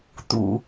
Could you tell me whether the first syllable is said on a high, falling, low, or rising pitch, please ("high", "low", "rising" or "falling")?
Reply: low